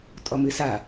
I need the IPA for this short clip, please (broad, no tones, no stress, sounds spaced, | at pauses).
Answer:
tʼ ɔ m ɨ s a